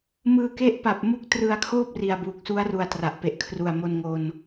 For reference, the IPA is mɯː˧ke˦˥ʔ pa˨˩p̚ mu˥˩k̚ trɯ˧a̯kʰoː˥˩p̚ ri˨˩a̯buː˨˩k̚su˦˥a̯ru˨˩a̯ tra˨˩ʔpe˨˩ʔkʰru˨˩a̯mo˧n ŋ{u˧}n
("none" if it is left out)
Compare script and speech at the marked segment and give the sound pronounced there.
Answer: o˧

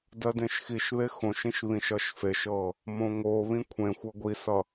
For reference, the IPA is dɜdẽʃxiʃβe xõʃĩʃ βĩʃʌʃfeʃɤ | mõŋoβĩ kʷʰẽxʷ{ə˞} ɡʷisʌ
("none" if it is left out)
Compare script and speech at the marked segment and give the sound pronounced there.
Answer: ɤ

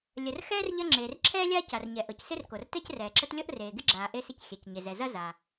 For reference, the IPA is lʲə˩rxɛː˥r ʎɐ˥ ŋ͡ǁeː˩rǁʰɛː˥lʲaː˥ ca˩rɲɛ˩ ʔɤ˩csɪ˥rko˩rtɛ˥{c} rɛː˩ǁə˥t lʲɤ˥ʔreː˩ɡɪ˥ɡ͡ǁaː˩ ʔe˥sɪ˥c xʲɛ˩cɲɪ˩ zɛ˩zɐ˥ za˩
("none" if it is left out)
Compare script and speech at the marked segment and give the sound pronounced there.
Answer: c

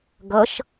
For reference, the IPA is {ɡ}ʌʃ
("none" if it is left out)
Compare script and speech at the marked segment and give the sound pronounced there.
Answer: ɡ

